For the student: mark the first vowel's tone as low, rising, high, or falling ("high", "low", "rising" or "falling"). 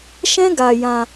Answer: high